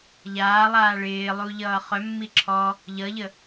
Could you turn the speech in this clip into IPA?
ʎ aː lˠ aː ɭ ɪː lˠ u ʎ ʌː χ œ mː i ǁʰ ɔ | ʎ ʌ ʎ ə

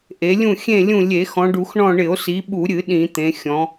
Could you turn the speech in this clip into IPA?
ʔ e˩˧ lʲ ũ˦˨ xʲ ẽ˦˨ lʲ ũ˦˨ lʲ e˧˩˧ x ɔ̃˩˧ ɖ u˧˩˧ x ɳ ɔ̃˦˨ ɳ ɪ˧˩˧ o̯ s i˩˧ ɓ u˧˩˧ ɾʲ ɨ˧˩˧ ɗ ĩ˧˩˧ t̪ ẽ˩˧ xʲ ɔ̃˩˧

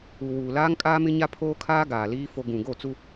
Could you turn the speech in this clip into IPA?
u˨ w uː˨ l aː˦ ŋ kʼ aː˦ m ɪ˦ ɲ a˦ pʰ oː˦ kʰ aː˦ ɡ aː˨ l iː˦ f o˦ ɡ ũ˨ ɡ o˦˨ t͡s u˦

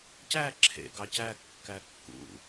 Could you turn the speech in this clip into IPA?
c æ ǁʰ ḛ ɡ ɑ c æ kː æ kː ṵ

